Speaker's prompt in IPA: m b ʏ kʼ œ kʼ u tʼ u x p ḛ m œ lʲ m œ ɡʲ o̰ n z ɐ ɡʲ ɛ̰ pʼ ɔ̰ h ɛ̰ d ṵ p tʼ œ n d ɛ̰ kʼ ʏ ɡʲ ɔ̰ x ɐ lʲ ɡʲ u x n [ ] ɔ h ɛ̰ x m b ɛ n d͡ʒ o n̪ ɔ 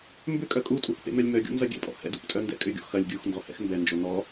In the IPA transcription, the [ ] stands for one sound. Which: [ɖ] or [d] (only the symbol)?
d